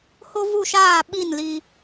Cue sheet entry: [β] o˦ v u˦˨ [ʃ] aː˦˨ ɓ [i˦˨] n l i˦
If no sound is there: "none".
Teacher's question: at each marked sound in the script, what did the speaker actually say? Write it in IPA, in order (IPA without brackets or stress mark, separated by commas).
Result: h, ʃ, i˦˨